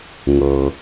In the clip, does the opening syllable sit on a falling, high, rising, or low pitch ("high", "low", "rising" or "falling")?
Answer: low